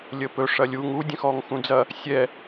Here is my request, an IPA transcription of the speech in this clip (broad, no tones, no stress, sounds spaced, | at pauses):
lʲ əː p ɵ ʂ ɐ lʲ u ŋ u dʲ ə̃ x ɔː ŋ x ũ d͡z ɐ | sʲ ɛ